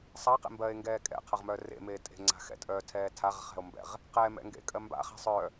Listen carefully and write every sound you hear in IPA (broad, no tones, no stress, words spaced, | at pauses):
sˤaqḛ mbɜːe̯ŋɡɛːkʼɛ̰ qʰʌʁmœːrḛmeː tʼe̤ŋ͡ǀa̤ xɛ̰tʼœ tʰɛːtʰaʁχɛ̤o̯mbɛ̰ʁ | qɛmɛ̰ ŋɡḛkʼɜmba̰ χe̤sˤœ